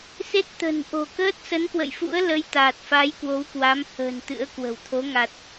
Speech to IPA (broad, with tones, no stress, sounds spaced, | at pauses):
s e˦˥ t̚ t̪ ə̤˨˩ n ʔ o̤˨˩ k əː˦˥ t̚ s ə˨˦ n k w ə̰˧˨ j f ṵ˧˥ ə̯ l ə˨˦ j t̪ aː˨˩ t̚ f a˨˦ j k w o˨˦ w k w a˨˦ m h ə̤ː˨˩ n t̪ ɨ̰˧˥ ə̯ k w ə̤˨˩ w t̪ʰ o˨˦ ŋ a˨˩ t̚